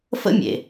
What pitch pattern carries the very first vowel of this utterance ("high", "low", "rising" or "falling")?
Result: high